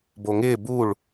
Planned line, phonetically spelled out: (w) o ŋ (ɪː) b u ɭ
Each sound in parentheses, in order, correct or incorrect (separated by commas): incorrect, correct